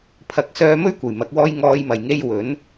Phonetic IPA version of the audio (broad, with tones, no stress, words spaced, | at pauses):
pʰɐ˨˥k̚ sœː˧mɵ˥ɥkʷɐ˨˩j mɐ˨˥k̚wɔː˥j ŋɔː˧j mɐ˨˩jŋe˧j wɵ˨˥n